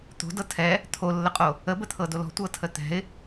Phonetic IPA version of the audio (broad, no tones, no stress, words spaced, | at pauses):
t̪o̤dɤ tʰɛ | t̪ʰolːəqʼo | əbət̪ʰɤdol ɔ̤tʷɤtʰə t̪ɛ̤ɪ̯